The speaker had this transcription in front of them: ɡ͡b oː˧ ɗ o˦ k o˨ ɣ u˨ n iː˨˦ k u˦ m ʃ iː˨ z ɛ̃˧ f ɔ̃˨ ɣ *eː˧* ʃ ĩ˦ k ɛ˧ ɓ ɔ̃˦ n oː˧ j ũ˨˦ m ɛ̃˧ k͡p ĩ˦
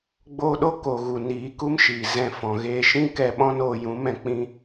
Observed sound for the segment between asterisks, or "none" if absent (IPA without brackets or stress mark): eː˧